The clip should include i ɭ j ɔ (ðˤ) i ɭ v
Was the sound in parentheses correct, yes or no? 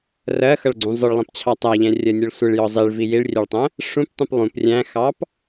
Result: no